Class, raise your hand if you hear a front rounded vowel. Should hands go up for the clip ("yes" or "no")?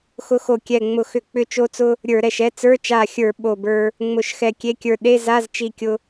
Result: yes